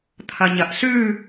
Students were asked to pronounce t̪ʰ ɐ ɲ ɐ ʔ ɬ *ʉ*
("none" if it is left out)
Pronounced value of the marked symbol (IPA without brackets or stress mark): ʉ